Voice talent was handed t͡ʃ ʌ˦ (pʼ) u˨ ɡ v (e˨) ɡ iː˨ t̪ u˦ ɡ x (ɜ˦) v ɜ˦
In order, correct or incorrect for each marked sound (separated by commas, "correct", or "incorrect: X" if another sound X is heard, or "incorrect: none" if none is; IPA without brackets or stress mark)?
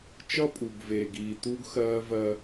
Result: correct, incorrect: eː˨, incorrect: ɜː˦